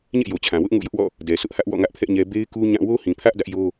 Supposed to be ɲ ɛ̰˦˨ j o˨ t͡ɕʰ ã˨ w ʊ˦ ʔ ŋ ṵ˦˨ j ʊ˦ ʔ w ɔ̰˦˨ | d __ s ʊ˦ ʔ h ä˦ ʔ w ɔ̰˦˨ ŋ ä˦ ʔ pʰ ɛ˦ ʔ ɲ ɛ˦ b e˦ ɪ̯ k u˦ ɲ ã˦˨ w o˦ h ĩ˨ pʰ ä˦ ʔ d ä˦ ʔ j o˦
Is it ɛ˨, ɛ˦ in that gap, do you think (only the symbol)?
ɛ˨